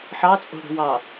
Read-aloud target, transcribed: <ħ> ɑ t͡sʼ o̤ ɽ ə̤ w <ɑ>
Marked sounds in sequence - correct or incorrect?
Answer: correct, correct

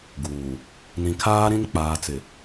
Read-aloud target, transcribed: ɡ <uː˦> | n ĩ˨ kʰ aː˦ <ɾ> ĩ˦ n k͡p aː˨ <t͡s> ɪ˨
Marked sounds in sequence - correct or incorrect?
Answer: incorrect: uː˨, correct, correct

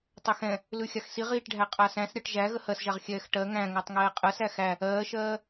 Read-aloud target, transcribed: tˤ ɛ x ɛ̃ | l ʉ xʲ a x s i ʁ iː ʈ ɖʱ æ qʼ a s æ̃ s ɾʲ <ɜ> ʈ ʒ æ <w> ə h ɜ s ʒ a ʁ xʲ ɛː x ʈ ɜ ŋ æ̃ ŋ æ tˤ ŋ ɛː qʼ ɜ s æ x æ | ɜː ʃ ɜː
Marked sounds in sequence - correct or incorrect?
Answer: correct, incorrect: ɣ

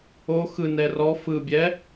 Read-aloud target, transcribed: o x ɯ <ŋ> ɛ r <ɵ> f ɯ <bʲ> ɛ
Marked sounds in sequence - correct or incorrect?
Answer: incorrect: n, incorrect: ɔ, correct

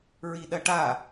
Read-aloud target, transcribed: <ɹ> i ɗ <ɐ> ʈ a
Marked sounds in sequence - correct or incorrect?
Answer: correct, correct

